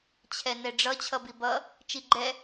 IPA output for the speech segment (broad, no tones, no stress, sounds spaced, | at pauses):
t͡ɕʰ ɛ n ɛ ɖ͡ʐ ʌ t͡ɕʰ ʌ b i b ʌ | t͡ʃ i ɡ͡ǃ ɛ